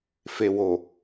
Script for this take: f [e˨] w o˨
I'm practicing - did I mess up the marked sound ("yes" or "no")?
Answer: no